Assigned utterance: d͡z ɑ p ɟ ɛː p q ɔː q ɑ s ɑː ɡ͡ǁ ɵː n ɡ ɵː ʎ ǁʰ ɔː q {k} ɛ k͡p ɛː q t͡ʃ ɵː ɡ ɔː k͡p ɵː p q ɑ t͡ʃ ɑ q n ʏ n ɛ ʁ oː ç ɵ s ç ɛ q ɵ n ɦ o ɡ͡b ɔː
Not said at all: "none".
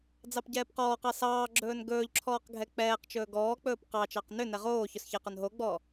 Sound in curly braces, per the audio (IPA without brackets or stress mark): ɡʱ